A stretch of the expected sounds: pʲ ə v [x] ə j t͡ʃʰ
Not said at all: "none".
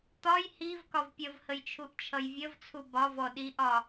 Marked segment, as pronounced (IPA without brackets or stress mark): h